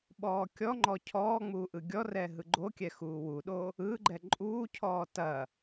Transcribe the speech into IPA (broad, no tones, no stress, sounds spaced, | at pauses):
ɓ ɔː kʲ ɔ ŋ͡ǃ ɔ cʰ ɔː ŋ͡m uː ʔ ɯ ɡʲ ɔ r ɛ ɦ ɯ ɡ͡ǃ o kʲ ɛ x uː w u ɗ o | ɯ ɡ͡ǃ ɛ ǃʼ uː cʰ ɔː t ɐ